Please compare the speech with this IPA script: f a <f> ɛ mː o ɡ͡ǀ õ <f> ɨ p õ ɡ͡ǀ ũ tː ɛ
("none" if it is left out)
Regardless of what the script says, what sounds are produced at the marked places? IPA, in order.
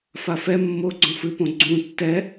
f, f

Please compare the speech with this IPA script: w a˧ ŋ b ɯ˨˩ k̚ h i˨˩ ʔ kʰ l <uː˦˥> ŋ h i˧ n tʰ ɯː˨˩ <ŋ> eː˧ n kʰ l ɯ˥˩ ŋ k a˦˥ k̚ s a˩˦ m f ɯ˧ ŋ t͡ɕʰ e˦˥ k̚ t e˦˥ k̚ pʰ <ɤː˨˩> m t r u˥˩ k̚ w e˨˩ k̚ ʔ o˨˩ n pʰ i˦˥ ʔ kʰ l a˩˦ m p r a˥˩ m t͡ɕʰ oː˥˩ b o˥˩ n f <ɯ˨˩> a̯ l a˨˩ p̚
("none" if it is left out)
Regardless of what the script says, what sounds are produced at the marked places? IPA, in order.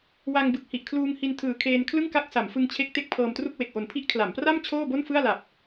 uː˧, kʰ, ɤː˧, ɯ˥˩

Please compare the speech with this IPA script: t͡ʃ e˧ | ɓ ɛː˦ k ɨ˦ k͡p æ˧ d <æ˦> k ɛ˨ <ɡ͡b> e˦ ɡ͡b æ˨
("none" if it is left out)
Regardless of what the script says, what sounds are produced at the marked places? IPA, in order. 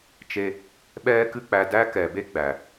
æ˦, b

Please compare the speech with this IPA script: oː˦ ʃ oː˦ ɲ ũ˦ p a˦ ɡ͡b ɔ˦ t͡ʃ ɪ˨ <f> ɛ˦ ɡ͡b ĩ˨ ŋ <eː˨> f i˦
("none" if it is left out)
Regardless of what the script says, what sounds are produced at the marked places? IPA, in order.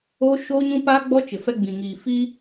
f, iː˨

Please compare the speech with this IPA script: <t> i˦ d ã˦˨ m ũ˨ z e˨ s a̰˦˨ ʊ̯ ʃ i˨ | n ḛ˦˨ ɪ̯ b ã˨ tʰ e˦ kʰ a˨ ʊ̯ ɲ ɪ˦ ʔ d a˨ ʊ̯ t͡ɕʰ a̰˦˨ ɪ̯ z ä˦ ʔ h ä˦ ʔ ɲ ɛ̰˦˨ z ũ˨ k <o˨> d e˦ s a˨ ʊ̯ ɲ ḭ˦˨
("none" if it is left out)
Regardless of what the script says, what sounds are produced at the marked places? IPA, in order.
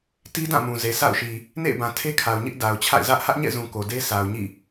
t, o˨

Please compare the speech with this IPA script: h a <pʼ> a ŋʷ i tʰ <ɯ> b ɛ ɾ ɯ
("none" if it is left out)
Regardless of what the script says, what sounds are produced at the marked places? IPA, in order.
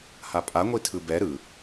pʼ, ɯ

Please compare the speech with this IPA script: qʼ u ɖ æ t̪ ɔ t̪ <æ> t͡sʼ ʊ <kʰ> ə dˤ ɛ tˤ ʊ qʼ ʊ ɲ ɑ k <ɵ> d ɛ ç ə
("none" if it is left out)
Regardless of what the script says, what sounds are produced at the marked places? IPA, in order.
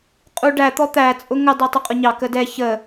æ, ŋ, ə

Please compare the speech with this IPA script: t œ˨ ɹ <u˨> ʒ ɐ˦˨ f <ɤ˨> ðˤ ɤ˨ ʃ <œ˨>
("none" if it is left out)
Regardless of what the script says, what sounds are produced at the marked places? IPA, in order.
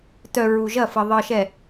u˨, ɤ˨, ɛ˨

